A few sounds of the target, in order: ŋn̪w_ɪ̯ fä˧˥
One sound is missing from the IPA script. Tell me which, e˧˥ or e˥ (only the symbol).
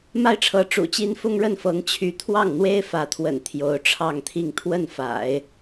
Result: e˥